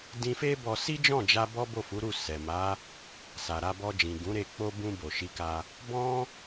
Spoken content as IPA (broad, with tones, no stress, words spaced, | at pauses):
dĩ˧fe˦bɔ˧ si˦d͡ʒɔ̃˦˨d͡ʒa˧ bɔ˦ bo˦˨fu˨˦ɾu˦˨ sɛ˨ma˨˦ | sa˨ɾa˧ bɔ˧d͡ʒĩ˨ ɡũ˨˦ɾe˧ k͡po˧bũ˧ bo˨ʃi˧ka˧ | bɔ̃˦